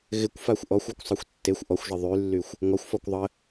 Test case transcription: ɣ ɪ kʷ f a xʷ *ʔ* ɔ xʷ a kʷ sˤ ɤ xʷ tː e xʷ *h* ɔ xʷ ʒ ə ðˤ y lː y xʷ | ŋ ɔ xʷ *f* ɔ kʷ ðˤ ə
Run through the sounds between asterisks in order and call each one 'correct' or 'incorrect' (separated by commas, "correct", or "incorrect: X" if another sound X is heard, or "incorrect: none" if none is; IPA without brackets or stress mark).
correct, incorrect: ʔ, correct